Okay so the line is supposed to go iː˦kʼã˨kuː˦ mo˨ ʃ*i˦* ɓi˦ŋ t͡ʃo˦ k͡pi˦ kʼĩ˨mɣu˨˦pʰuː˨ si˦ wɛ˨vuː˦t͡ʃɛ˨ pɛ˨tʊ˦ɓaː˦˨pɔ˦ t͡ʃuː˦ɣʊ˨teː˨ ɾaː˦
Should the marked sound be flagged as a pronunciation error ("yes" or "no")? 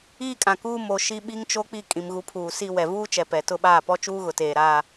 no